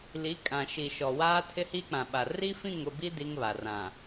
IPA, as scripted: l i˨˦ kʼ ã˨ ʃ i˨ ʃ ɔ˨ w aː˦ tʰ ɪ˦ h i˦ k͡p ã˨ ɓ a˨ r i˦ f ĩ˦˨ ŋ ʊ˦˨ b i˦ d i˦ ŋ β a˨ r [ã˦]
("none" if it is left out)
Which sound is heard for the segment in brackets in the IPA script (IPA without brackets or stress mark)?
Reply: ã˨